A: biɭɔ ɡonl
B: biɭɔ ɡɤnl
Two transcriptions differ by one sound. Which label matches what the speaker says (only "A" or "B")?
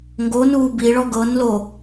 B